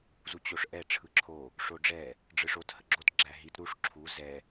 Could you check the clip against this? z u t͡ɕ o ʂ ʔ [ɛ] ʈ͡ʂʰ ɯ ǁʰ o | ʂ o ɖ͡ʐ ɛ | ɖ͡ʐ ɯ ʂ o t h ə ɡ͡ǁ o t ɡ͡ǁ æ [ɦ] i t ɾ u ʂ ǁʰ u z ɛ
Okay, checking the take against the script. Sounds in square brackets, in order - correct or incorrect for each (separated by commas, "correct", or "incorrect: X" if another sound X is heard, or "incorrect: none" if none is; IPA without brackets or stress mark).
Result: correct, correct